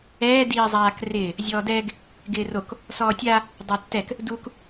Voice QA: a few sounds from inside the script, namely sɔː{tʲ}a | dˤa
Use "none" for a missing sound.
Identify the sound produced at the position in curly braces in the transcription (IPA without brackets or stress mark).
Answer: tʲ